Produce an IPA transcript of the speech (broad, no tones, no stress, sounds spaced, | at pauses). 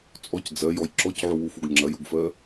t͡sʼ ɔ c d͡z ɜ j ɔ j ǁ ɔ c ʕ u w u f u ɡ ŋ͡ǁ ɐ j u ɡ f ɜ